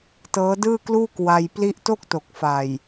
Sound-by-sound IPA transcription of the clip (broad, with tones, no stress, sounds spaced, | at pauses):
t ɤː˦˥ d ɯː˥˩ k l uː˥˩ k w a˧ j p l i˦˥ ʔ t o˥˩ k̚ t o˨˩ k̚ f a˨˩ j